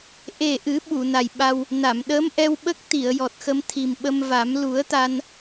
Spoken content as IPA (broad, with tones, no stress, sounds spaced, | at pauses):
ʔ e˨˩ ʔ ɨ˨˩˦ ɓ u˨˩˨ n a˨˩ j ɓ a˧ w | n a˨˩˨ m ɗ ə˧˥ m ʔ ɛ˧ w ɓ ə˦˥ k̚ t̪ i˨˩˨ ə̯ j ɔ˨˩ t̚ x ə˧ m t̪ʰ i˨˩ m ɓ ə˧ m v a˨˩˦ m l u˨˩˦ ə̯ t̪ a˧ n